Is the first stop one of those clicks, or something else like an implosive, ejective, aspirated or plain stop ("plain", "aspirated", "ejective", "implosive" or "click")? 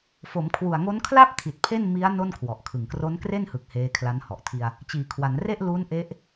aspirated